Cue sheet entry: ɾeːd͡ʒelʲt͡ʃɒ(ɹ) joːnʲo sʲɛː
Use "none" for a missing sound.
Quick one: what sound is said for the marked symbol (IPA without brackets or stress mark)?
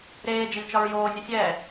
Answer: ɹ